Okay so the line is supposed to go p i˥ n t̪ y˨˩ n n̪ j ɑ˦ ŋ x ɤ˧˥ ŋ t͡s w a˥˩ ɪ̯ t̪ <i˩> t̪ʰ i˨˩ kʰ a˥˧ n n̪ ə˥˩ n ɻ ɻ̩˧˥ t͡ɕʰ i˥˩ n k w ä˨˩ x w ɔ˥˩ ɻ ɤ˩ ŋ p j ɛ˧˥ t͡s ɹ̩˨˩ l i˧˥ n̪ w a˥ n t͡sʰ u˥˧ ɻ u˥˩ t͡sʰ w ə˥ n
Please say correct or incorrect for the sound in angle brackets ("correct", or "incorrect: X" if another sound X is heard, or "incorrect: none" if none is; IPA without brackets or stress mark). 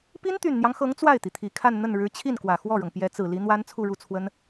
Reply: correct